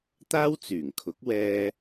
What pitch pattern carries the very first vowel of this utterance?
high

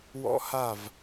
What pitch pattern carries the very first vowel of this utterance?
high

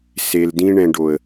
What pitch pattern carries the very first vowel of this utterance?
low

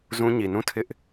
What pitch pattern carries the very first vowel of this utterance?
high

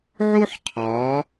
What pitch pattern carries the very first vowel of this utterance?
high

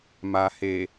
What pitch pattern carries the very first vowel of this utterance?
low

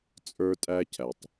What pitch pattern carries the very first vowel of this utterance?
high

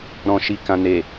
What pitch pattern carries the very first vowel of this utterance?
low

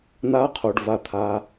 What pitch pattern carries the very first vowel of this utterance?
rising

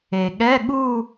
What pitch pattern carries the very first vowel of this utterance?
low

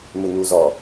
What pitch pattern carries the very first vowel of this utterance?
low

